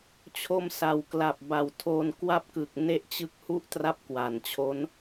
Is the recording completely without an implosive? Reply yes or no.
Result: yes